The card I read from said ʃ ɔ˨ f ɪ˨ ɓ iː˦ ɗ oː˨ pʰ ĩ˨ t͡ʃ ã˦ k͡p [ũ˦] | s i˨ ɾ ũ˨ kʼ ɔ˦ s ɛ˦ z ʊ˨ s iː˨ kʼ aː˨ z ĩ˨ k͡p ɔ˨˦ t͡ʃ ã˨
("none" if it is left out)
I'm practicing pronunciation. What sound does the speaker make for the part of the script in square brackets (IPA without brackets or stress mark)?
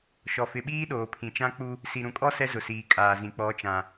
u˦